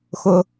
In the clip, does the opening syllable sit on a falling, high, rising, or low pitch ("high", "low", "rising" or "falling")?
low